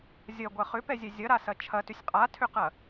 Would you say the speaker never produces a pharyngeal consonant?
yes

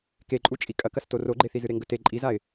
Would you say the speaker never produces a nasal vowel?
yes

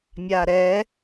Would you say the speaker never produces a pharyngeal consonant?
yes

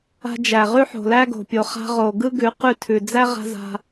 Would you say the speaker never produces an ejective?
yes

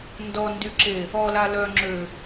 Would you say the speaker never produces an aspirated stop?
yes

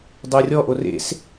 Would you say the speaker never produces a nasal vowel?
yes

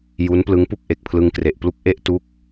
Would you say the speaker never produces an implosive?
yes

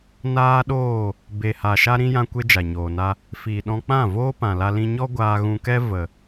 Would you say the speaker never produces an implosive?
no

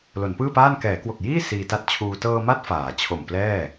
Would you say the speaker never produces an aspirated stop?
no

